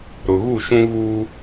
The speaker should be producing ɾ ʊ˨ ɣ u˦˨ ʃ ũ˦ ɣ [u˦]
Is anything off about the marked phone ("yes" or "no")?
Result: no